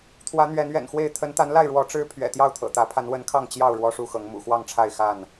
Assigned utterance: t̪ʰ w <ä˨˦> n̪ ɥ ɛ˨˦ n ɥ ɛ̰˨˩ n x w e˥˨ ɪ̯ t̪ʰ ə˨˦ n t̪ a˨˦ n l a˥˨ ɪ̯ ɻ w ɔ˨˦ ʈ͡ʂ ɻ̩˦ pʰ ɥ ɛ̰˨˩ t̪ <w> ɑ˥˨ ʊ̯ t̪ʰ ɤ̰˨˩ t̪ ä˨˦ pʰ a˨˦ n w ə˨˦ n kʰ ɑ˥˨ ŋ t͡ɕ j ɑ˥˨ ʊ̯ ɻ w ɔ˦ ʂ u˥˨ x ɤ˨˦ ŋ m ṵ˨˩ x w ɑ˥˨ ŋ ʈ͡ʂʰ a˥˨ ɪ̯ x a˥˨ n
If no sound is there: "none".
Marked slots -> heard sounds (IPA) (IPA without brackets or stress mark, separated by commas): ä˨˦, j